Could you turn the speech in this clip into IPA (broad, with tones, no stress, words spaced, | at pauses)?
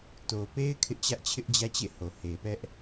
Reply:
to˨pe˦ɪ̯ kʰɪ˦ʔt͡ɕä˦ʔt͡ɕʰɪ˦ʔd͡ʑä˦ t͡ɕḛ˦˨ho˨ he˨pɛ˦ʔ